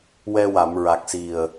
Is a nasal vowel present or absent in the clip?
absent